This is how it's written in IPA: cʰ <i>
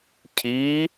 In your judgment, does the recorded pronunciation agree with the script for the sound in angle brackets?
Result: yes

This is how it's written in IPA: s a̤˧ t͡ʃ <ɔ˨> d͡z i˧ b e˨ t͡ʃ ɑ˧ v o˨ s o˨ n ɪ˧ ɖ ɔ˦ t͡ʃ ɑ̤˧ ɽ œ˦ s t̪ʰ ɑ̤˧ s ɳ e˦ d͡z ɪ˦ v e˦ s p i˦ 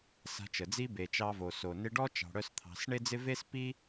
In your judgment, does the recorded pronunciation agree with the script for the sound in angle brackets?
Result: no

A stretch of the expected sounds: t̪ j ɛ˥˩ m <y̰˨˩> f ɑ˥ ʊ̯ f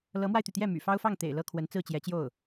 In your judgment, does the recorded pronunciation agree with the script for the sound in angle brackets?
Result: yes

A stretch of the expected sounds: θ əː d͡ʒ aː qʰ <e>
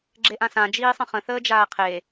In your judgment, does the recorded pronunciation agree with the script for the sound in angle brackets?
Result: yes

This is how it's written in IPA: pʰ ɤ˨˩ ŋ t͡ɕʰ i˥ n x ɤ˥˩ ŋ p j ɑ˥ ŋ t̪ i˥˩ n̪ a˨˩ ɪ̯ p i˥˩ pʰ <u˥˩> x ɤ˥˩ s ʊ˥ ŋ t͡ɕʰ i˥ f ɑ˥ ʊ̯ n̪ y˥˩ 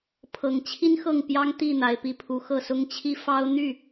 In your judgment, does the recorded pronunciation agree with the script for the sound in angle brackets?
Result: no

